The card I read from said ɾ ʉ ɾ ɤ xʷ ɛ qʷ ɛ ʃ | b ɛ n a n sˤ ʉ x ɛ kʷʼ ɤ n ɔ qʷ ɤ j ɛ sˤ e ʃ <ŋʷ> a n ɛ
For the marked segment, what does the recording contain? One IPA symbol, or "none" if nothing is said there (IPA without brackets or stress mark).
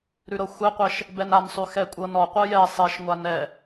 ŋʷ